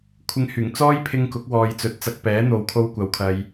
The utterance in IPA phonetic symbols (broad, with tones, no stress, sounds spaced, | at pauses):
kʷʰ ɪ˧ ŋ h yː˨˩ ŋ t͡s ɔː˥ j pʰ ɪ˧ ŋ k ʊ˨˥ k̚ w ɔː˨ j t͡s ɵ˨˥ t̚ t͡s ɐ˧ k̚ p ɛː˨˥ n̪ o˨ w kʰ o˧ w kʷ ɐ˨˧ w kʰ ɐ˧ j